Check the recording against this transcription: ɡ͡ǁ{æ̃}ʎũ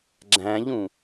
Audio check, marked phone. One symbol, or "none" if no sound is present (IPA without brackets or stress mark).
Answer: æ̃